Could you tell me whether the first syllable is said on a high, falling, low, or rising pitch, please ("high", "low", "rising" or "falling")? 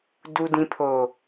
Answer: low